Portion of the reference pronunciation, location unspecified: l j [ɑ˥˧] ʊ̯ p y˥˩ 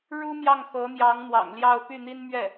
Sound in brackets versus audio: correct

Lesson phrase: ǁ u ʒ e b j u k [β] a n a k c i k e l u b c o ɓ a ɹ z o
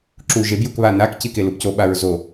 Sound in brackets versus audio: correct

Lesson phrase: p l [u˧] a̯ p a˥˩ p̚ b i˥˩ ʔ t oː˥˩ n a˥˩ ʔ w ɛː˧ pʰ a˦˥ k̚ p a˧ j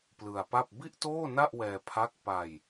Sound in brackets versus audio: incorrect: ɯ˧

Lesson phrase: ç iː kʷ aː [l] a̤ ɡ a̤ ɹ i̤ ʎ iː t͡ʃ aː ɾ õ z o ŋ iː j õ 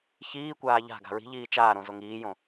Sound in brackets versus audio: incorrect: ʎ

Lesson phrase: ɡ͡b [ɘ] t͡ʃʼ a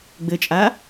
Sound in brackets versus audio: correct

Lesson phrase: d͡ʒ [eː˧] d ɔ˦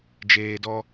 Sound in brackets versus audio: correct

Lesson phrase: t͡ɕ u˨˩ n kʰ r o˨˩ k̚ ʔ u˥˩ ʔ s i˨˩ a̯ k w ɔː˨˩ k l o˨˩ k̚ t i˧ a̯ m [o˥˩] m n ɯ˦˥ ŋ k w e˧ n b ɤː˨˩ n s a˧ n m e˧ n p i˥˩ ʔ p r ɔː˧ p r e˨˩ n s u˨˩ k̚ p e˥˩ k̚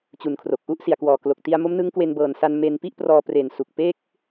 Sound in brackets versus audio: incorrect: o˦˥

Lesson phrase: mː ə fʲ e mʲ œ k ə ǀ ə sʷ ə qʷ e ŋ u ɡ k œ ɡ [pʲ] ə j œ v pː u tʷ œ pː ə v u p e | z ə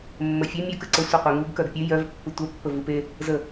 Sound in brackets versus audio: correct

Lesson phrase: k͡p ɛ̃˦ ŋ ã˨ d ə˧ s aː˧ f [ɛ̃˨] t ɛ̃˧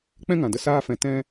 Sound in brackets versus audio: correct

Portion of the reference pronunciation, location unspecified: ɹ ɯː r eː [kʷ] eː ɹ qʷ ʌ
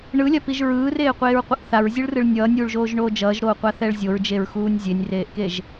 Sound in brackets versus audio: incorrect: qʷ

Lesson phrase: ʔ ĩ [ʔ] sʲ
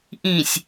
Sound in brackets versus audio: incorrect: none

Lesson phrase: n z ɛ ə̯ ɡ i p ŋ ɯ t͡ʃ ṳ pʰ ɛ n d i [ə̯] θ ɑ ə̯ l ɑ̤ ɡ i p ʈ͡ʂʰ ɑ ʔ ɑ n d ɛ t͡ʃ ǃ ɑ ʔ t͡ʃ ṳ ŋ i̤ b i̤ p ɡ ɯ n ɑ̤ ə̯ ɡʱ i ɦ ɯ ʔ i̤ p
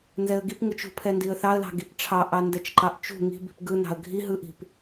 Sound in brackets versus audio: correct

